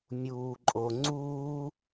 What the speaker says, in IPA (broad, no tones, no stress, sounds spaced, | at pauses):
mʲ uː ǃʼ o ŋ͡ǀ uː